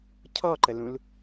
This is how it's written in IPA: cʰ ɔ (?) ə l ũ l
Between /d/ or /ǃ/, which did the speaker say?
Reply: ǃ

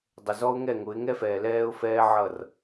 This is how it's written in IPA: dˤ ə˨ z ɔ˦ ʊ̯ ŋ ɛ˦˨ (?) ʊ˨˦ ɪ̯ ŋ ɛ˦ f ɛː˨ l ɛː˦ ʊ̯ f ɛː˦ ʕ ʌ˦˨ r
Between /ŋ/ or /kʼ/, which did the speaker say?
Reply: ŋ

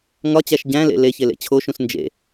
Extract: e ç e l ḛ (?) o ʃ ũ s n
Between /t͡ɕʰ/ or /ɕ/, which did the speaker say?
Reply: t͡ɕʰ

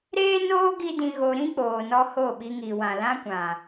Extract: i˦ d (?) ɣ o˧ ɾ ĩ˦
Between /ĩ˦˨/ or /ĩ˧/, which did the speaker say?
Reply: ĩ˧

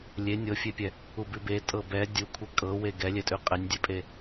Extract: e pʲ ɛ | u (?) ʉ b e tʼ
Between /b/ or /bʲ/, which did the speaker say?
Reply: b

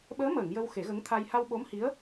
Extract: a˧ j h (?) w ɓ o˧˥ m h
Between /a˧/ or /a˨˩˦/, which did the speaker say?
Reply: a˧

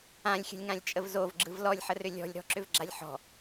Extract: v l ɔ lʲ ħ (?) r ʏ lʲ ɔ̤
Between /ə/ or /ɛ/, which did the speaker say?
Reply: ə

